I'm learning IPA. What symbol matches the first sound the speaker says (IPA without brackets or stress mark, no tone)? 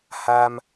h